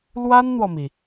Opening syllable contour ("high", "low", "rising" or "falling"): high